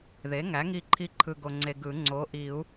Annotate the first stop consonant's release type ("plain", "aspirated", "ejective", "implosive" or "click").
click